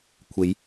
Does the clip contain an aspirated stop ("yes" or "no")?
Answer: yes